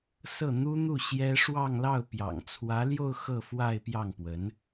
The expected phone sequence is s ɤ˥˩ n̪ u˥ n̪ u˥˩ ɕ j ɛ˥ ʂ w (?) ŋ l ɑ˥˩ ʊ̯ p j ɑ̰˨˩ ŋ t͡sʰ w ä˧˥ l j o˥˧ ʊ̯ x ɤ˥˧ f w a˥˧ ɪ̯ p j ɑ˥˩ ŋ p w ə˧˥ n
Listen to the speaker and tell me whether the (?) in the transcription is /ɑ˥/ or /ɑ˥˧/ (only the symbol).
ɑ˥˧